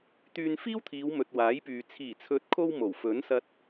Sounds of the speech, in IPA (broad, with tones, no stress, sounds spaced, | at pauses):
t̪ yː˧ n f iː˥ w t̪ʰ iː˨˧ w m ɵ˨ t̚ w aː˨˥ j p yː˨ t͡sʰ iː˨˩ t͡sʰ ɵ˨˥ t̚ kʰ o˧ w m o˨˩ w f ɵ˨˥ n s ɐ˧ t̚